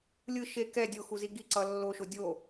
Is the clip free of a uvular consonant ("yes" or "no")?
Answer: yes